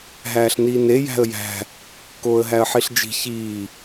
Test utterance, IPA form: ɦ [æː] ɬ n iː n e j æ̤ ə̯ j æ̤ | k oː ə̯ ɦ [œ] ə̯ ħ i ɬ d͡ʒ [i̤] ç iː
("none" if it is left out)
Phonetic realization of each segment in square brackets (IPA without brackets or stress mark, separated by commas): æː, æ, i̤